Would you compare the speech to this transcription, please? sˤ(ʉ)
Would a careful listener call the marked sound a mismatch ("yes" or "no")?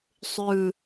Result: no